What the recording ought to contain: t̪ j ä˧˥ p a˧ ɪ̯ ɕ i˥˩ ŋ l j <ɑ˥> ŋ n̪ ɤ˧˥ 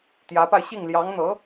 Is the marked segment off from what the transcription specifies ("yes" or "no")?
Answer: yes